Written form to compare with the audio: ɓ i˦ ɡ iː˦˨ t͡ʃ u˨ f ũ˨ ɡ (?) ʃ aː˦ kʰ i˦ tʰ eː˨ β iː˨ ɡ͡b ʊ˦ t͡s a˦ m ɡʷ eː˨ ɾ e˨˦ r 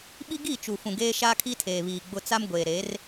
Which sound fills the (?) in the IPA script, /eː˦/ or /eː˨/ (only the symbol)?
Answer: eː˦